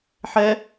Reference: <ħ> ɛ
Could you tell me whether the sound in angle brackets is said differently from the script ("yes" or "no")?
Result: no